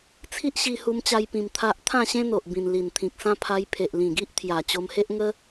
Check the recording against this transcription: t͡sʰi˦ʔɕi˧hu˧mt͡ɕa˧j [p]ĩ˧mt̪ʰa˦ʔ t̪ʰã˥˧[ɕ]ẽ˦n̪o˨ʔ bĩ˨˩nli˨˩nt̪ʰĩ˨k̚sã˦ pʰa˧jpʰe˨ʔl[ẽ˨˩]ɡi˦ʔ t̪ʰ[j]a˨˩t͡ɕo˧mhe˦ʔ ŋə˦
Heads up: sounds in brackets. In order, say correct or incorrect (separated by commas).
correct, correct, incorrect, correct